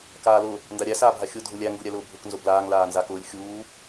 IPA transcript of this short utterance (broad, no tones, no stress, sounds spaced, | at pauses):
k aː l ʊ | n d a ɾʲ æ s aː bʱ a xʲ ʊ dʱ ʊ lʲ æ ŋ ɡ u ɾʲ æ l ʊː bʱ ʊ k n z ʊ b l aː ŋ l aː n z a k ʊː lʲ xʲ uː